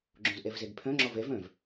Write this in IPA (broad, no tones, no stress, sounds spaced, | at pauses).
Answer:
ɡ͡ǁ õ z ʔ ɛ v z ɛ ɡ pʰ œ̃ ŋ͡ǁ ɔ v ɛ v œ̃ v